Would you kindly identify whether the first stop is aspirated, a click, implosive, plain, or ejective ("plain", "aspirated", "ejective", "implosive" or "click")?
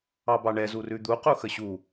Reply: plain